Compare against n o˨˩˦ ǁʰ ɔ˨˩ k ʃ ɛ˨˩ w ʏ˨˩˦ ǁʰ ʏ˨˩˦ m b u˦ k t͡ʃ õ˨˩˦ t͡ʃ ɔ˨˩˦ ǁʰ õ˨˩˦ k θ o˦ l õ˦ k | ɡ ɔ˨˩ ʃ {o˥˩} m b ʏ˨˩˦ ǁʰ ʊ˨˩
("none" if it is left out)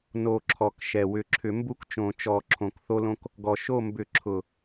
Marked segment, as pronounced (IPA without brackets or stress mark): o˥˩